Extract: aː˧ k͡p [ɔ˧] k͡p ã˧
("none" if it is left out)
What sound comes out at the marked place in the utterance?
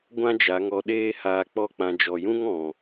ɔ˦˨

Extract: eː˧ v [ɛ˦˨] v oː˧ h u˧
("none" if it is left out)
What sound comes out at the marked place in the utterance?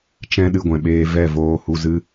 ɛ˦˨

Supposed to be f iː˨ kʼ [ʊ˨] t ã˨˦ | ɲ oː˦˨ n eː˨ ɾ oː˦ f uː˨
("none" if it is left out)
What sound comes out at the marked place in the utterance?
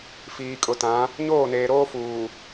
ʊ˨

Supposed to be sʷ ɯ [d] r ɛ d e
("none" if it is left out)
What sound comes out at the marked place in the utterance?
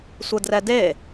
d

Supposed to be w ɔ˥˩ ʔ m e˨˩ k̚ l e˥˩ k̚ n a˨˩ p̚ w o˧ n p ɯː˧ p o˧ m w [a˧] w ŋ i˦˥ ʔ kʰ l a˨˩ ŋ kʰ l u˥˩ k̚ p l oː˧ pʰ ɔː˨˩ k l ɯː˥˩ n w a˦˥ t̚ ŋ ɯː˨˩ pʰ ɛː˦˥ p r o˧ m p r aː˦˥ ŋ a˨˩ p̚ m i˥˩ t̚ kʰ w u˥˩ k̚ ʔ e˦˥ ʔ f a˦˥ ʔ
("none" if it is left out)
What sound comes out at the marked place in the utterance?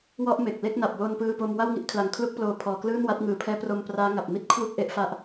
a˥˩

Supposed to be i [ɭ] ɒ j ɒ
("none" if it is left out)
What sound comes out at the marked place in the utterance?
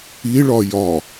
ɭ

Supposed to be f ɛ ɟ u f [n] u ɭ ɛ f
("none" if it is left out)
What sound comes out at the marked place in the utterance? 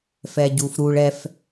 ɾ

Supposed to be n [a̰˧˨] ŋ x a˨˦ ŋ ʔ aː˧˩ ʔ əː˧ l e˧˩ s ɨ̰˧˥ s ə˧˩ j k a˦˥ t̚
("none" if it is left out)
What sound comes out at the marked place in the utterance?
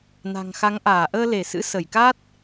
a̤˨˩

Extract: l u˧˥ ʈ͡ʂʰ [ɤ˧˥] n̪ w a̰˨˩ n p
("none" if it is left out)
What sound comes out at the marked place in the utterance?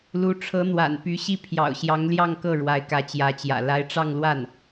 ɤ˧˥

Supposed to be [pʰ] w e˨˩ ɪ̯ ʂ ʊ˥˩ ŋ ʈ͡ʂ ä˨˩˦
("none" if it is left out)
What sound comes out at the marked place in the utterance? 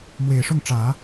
m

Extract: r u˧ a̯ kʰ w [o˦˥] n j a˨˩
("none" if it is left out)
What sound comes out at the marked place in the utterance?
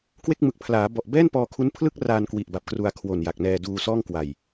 o˨˩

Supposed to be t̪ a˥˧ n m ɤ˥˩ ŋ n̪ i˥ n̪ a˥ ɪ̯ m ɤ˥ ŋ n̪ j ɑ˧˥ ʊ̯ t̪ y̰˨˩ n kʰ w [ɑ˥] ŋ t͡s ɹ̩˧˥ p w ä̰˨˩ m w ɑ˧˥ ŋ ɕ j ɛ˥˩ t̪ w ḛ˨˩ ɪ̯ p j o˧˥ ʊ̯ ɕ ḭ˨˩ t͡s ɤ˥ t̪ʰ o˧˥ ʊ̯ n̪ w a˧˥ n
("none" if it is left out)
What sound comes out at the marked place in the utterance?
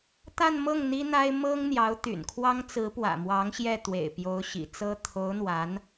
ɑ˥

